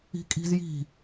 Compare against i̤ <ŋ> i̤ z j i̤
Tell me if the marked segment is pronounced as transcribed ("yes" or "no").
no